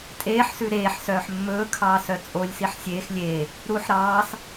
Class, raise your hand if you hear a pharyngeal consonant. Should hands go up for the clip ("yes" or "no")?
yes